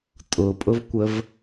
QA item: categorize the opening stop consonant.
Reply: ejective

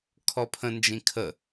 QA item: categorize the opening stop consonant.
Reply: aspirated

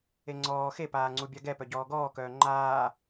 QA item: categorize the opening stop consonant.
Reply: click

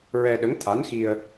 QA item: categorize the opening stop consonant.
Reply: implosive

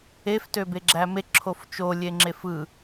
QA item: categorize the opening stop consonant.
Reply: plain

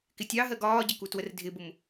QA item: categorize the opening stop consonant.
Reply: plain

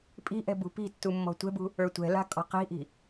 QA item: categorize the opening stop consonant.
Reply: ejective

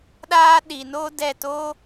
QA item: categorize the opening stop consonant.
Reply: implosive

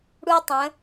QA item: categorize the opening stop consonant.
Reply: plain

